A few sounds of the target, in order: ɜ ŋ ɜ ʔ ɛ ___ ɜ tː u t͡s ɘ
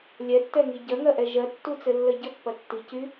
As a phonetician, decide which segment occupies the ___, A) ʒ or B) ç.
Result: A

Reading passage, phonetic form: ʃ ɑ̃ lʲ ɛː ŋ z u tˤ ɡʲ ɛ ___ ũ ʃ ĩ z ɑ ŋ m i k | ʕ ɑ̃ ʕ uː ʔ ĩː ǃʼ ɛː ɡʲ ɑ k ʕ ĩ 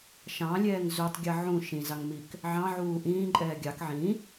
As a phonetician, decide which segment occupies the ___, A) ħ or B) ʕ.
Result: B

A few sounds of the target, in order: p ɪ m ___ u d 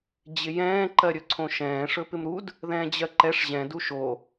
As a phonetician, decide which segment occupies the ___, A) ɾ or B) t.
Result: A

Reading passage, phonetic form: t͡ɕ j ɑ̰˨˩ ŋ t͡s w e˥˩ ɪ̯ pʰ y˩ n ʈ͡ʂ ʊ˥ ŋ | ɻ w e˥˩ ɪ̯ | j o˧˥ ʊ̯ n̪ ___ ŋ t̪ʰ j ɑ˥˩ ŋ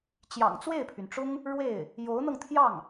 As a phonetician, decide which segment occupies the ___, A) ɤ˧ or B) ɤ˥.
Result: A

